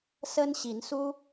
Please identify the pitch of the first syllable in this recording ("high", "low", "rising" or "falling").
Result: high